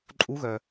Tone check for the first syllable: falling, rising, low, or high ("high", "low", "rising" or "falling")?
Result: rising